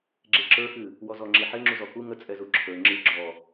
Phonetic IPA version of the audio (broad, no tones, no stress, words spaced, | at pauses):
ɡ͡ǁeǁə˞xɨ | wɔzɔŋ͡ǁiħe ŋ͡ǁuzɔku ŋət͡sʼɛ zuǁʰə˞ ŋ͡ǁɨ ɡ͡ǁɔ